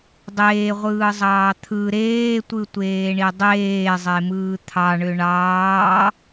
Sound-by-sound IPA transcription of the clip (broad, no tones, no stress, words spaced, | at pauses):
dˤeːʁʷɯːzˤɑː t̪ʰɯ ɾeːtʷɯtʷeːɳi dˤeːzˤemɯː t̪ʰɑɳø ɳɑː